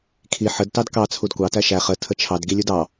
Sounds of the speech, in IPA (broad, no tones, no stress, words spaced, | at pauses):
kʰi ħəd tɑdkɑ t͡sʰudkʷɑ tæʃæ χə tʰət͡ʃʰɑd ɡilʲudɑ